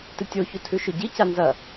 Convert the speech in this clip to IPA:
tɨtʲoçu tʰʉʃoɟica nzɐ

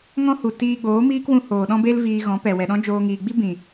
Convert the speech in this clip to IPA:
ŋɔ̃˦hu˨ tiː˧ɡ͡boː˨˦miː˦kwũ˧ hoː˨ɗɔ̃˦be˦l viː˧ɣɔ̃˨˦pɛ˨ wɛ˨ɗɔ̃˦d͡ʒoː˧ ŋiː˨ɡ͡bi˦ bĩ˨

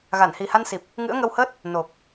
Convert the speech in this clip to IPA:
ɣa˧˩nhi˨˩ha˧nsi˨˩p̚ | ŋɨ̰˧˥ə̯ŋə˧whəː˦˥t̚ | no˨˩k̚

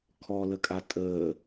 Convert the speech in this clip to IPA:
kʰɔləkʼa tʼəː

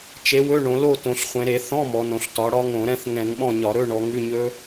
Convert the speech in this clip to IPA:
t͡ʃe˨˥wɵ˧˥˧ ɳõ˩˧lo˥˨ tõ˩˧ɬχʷẽ˩˧ɾe˧˩˧ θɔ̃˧˥˧ mɔ˩˧nõ˩˧ɬ tɒ˨˥ɽɒ˦˥ ŋõ˧˩˧ɾɛ̃˧˥˧θ ŋɛ̃˧˩˧ŋɓɔ̃˥˨ɲɒ˧˩˧ ɾɵ˧˥˧ɳɔ˩˧ ŋʉ˧˥˧ɲɵ˦˥

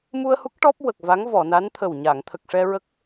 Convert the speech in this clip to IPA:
mu˧ə̯hu˦˥k̚ ʈɔ˦˥p̚ wə˨˩k̚va˧˥ŋvɔ˨˩˨na˧˥n t̪ʰə˨˩wɲa˨˩˨ŋ t̪ʰə˨˩k̚ʂɛ˧ɹə˦˥k̚

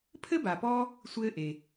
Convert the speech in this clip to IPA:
pʰɘ˥ba˨pɔː˦ | sʷɘː˦ʔe˩

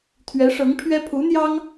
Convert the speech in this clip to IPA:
t̪ʰɥɛ˧˥ʂɤ˧˥ŋpʰɥɛ˥ pʰu˧˥n̪jɑ˥ŋ

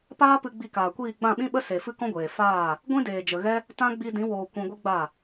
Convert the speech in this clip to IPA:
paː˦pɨ˧ ɡ͡bi˧kaː˨kʷiː˦˨ ɡ͡bã˦˨ɓĩ˦ɓə˦ se˨ fɨ˦kɔ̃˦ɡʷeː˨ faː˦˨ | ɡʷĩ˦deː˨d͡ʒə˨ɣɛ˦ | tã˦ ɡ͡bi˧dĩ˨˦woː˨ kʷĩ˧ɡʷɨ˦ɡ͡ba˦˨

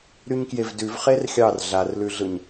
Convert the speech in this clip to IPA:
ɾyɲkjevdʉv χerxʲɑr ɮarlʉɮɯɲ

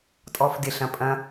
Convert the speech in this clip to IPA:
tʼɔːfdɪ ɬɐ̃pʼɐ̃

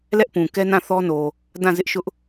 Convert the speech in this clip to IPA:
lɛ˦ʔpũ˨kɛ˦nã˦˨ θɔ˦no˨ | dã˦˨zɪ˦ʔʃʊ˦ʔ

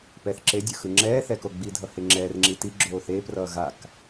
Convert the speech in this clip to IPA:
pɛθ ǁedʲɯ xɯŋ͡ǁɛːθɛ koɡ͡bidʱʌ heŋ͡ǁɛːrŋ͡ǁi ti ɡ͡ǁoːθeːprʌː ɣak

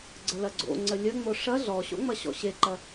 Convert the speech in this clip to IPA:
ɡ͡ǀəlɐɡ͡ǀo̰ ŋ͡ǀəlʲəŋ͡mo ʂɐ ɮɔɕo̰ŋ͡mɐ ɕɔ̰ɕeǃɐ

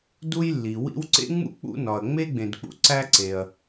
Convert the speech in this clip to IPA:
du˥jlːi˩wḭ˥w ǀḛ˥ŋ͡mṵ˥ k͡pṵ˥nɒ˩ɐ̯ ŋ͡me˥ɡ͡bẽ˩dk͡pṵ˩ ǀæ˥ǀe˩ɐ̯

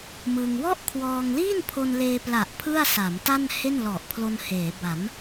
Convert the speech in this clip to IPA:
mɯ˧ŋ wɔ˥˩ʔkʰwɔː˧ŋliː˥˩n pʰo˧nleː˧pla˨˩ʔ pʰɯ˥˩a̯sa˩˦mta˥˩n he˥˩nlɔ˨˩ʔpʰlo˧n heː˩˦ba˩˦m

